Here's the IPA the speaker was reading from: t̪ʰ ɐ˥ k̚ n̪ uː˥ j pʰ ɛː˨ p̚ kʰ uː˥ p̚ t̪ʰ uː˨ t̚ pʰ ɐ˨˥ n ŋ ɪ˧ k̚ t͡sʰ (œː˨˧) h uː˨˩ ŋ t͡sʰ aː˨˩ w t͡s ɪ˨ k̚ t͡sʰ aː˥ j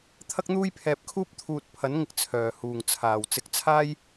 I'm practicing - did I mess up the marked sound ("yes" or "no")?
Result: yes